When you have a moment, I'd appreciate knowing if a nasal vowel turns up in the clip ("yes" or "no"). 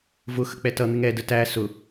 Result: no